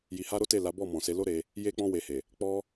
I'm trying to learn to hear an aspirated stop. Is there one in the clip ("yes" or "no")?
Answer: no